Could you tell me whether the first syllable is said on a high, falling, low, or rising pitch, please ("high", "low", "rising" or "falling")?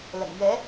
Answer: low